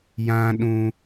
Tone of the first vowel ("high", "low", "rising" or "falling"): high